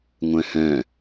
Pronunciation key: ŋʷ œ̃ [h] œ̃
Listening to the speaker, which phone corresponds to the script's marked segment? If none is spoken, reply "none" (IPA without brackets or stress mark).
h